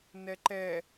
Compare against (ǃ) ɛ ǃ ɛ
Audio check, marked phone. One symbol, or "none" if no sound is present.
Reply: n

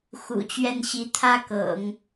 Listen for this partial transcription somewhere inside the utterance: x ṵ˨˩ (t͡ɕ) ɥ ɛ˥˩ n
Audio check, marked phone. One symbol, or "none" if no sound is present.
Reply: t͡ɕ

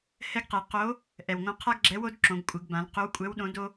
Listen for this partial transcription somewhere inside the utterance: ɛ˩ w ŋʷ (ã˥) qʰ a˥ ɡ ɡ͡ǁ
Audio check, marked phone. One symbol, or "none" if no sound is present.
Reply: ã˧˥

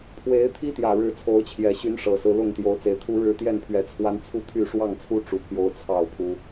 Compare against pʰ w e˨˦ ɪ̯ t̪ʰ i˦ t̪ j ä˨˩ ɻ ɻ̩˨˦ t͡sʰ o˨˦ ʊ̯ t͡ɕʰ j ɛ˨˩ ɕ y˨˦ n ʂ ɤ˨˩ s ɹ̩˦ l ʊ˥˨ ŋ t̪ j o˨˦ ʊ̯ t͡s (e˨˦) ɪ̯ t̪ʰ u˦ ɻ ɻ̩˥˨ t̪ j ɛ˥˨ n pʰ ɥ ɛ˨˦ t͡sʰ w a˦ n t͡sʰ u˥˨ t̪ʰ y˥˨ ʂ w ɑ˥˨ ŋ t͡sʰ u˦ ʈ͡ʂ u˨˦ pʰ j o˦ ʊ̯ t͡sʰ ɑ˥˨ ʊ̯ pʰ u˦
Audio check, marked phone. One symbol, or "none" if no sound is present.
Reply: e˨˦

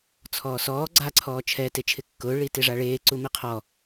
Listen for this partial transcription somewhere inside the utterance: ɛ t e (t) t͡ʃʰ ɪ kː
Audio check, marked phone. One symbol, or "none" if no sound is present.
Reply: none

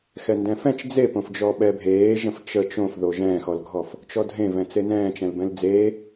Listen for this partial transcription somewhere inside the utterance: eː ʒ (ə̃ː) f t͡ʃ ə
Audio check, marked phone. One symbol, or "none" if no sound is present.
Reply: ə̃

